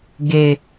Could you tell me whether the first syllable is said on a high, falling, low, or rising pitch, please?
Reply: low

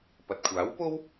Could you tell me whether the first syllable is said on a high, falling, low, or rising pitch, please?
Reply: low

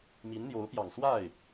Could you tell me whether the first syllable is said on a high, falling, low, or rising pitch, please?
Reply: rising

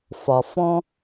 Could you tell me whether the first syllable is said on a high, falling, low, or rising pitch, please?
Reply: low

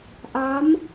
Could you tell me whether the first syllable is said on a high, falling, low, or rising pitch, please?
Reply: rising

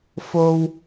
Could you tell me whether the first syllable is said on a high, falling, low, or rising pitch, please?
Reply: high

